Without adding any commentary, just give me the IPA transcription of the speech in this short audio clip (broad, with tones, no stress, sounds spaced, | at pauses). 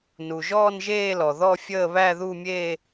n u˩ ʒ ɔː˥˧ n ʒ eː˥˧ l ɔ˩ ð ɔ˥˧ fʲ əː˥˧ β æ˥˧ ð u˥˧ mʲ eː˥˧